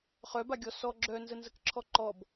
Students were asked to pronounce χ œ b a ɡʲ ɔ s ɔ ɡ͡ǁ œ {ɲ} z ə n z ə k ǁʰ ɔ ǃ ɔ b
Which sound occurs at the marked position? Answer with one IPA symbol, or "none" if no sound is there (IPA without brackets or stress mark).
n